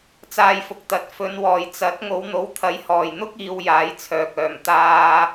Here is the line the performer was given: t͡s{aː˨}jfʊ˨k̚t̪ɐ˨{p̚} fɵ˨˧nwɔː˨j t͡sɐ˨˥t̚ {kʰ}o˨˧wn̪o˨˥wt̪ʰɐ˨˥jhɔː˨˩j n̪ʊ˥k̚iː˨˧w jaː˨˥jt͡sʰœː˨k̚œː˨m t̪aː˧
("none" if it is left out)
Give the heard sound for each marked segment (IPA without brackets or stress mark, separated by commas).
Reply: aː˨, t̚, ŋ